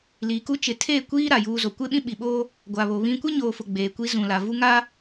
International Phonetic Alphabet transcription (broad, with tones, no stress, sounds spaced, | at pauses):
l iː˨ k u˦ t͡ʃ ɪ˨ tʰ eː˦˨ kʷ iː˦ ɾ a˨ j uː˦ z o˨ kʷ e˦ ɓ ĩ˦ ɓ i˨ ɓ oː˦ | ɡʷ a˨ β o˨ β ĩ˦ kʷ e˦ ɲ oː˨ f ʊ˨ ɡ͡b eː˨ kʷ i˦ z ũ˨ l a˨ v u˦ ŋ a˦